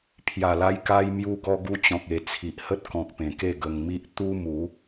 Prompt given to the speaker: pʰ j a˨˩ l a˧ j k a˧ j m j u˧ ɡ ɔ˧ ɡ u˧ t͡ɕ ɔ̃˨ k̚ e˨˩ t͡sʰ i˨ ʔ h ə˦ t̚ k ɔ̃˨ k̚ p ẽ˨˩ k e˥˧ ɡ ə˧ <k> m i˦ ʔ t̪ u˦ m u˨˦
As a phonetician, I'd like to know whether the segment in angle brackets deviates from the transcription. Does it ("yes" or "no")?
yes